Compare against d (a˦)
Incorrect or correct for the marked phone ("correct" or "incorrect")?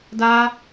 correct